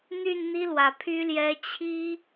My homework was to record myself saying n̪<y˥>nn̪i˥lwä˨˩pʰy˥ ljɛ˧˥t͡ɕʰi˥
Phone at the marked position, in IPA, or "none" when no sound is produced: y˥˩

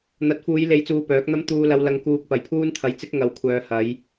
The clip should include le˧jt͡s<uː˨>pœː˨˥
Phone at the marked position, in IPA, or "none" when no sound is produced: uː˧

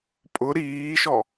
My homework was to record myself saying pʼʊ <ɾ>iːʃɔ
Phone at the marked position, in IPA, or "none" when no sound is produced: ɾ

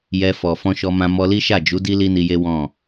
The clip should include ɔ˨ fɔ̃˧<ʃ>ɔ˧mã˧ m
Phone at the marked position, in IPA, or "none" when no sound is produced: ʃ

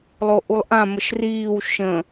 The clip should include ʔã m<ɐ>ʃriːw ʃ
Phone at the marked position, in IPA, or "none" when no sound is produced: ə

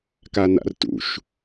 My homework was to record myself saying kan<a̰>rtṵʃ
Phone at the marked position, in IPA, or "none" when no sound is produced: a̰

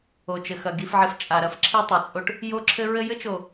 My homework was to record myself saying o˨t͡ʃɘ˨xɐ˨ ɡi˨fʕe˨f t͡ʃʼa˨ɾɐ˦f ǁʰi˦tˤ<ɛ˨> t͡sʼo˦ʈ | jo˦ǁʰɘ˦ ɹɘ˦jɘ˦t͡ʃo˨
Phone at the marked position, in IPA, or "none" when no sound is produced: ɛ˨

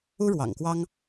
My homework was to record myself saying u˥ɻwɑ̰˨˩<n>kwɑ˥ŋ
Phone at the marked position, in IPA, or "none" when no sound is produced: ŋ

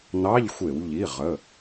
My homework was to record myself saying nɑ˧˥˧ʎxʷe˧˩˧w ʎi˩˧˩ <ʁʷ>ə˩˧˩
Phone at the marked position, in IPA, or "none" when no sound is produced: ʁ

